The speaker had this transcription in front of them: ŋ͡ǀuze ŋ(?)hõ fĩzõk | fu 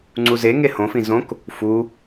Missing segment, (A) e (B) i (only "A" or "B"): A